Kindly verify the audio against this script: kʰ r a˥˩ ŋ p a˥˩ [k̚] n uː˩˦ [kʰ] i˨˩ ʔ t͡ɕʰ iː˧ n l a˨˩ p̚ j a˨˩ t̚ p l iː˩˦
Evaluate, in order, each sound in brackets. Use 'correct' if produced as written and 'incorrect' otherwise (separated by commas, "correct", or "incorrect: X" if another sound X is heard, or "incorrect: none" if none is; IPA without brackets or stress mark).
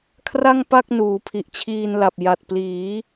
correct, incorrect: pʰ